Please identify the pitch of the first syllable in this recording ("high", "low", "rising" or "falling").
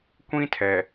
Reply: high